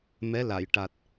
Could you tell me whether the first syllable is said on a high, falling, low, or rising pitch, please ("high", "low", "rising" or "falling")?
rising